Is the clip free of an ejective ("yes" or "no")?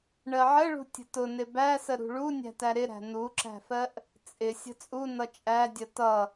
no